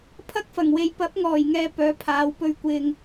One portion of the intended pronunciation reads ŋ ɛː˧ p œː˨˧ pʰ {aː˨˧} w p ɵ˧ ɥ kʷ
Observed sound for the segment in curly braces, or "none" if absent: aː˨˧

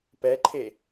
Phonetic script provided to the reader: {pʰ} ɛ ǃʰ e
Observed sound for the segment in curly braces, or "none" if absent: p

